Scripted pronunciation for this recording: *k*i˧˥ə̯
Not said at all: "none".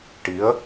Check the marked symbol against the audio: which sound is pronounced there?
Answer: ʈ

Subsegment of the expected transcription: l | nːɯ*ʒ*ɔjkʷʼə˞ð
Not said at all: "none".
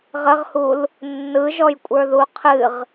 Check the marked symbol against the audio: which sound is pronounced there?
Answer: ʒ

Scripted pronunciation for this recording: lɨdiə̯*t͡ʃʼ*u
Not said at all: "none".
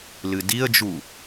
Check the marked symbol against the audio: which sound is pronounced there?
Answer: d͡ʒ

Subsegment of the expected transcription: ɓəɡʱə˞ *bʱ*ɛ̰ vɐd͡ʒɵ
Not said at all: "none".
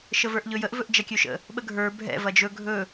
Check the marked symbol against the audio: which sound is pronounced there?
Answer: bʱ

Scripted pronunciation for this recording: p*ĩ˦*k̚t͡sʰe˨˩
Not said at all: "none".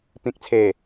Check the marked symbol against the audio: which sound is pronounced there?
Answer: ĩ˨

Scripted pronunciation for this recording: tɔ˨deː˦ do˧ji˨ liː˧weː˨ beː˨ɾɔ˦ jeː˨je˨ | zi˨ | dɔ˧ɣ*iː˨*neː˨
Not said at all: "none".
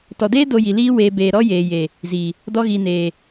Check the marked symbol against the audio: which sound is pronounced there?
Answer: iː˨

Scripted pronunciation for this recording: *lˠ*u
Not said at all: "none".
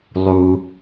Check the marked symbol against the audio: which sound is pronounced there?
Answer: lˠ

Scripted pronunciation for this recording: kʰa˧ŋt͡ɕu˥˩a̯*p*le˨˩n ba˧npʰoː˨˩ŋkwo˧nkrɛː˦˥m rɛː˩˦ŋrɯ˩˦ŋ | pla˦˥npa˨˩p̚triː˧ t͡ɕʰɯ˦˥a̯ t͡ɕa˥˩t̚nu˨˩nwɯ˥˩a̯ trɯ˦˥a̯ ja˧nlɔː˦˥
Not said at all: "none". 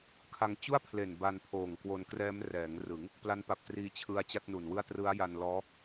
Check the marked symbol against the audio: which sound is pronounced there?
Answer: pʰ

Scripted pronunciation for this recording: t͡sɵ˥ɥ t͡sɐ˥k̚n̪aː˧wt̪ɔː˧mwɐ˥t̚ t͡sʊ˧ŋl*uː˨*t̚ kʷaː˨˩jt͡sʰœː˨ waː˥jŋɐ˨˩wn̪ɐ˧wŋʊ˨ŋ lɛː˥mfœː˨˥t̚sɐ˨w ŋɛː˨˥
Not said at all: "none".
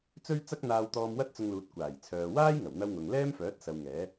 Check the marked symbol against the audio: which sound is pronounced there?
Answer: uː˨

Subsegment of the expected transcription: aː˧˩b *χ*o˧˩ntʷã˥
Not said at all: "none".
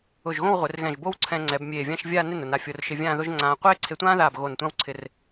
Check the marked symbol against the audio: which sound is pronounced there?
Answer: ɣ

